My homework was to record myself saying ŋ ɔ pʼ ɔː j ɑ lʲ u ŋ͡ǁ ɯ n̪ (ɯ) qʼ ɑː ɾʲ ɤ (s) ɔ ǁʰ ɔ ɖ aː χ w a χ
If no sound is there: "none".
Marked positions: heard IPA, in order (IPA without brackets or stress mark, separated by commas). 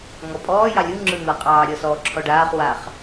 ɤ, s